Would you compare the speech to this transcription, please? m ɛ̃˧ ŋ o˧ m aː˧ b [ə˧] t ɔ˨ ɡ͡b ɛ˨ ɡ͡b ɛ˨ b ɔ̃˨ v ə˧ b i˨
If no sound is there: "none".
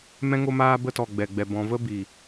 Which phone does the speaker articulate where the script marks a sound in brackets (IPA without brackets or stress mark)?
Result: ə˧